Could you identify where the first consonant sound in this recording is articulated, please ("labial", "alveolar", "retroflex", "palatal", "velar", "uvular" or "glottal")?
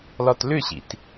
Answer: alveolar